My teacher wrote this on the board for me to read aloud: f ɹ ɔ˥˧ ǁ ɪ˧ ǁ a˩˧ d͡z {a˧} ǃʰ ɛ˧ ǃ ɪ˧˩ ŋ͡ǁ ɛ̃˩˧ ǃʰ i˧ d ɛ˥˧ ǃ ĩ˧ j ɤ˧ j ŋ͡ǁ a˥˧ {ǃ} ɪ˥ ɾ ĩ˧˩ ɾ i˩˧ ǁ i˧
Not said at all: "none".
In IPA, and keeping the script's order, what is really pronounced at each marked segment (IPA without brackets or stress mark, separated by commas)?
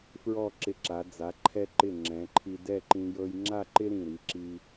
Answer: a˩˧, ǃ